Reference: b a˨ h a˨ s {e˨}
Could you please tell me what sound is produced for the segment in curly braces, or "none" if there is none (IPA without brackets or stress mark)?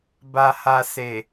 e˨